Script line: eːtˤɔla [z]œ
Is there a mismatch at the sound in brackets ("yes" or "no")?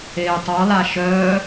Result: yes